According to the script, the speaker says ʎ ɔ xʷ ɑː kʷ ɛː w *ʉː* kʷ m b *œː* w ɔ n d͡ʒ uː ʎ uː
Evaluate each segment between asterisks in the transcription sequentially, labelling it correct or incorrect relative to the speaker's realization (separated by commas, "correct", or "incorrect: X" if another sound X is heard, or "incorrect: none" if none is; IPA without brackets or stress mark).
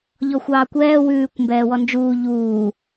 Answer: correct, incorrect: ɛː